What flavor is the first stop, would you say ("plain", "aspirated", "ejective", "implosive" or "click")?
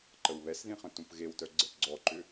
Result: click